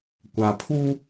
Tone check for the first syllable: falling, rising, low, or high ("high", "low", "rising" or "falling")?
low